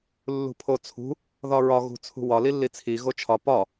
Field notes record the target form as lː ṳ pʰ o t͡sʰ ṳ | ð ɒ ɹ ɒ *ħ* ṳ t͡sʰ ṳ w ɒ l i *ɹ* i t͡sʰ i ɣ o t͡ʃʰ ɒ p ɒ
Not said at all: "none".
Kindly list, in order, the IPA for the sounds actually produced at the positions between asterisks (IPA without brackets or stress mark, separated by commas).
ɣ, lː